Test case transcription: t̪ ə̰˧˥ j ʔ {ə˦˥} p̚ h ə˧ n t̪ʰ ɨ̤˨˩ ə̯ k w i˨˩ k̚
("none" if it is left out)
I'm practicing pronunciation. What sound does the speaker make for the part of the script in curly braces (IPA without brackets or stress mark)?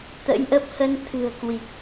ə˦˥